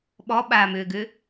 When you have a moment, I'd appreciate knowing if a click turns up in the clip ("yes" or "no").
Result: no